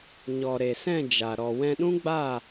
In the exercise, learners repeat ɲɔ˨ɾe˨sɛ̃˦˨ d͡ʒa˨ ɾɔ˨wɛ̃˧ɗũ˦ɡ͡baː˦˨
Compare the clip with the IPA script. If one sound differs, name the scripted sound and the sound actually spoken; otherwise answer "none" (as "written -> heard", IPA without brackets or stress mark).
none